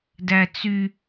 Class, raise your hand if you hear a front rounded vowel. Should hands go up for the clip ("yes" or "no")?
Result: yes